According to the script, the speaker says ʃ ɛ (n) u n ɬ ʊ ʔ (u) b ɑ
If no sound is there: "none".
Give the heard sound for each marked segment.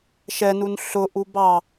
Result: n, u

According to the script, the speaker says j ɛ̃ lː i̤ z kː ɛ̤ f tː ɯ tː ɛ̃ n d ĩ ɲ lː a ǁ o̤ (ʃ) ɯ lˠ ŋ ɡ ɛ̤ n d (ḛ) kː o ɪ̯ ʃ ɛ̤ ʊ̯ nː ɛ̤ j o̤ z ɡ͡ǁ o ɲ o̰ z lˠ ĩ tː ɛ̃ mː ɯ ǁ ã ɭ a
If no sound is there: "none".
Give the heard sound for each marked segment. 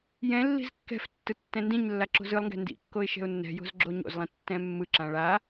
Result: z, ḭ

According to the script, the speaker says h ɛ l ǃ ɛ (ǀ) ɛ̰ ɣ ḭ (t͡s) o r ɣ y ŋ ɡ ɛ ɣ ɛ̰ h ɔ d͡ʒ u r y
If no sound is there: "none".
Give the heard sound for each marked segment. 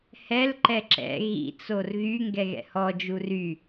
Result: ǁ, t͡s

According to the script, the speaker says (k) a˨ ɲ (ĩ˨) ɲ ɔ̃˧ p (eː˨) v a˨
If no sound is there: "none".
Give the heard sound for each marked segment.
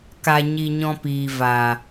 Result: k, i˨, iː˨

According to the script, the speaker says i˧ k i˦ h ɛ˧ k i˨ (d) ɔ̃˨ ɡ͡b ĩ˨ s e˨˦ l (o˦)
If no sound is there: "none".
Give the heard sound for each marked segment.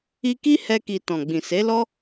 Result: t, ɔ˦

